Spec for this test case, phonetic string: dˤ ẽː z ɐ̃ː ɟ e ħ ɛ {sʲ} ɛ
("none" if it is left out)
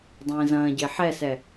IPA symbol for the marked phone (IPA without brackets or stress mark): s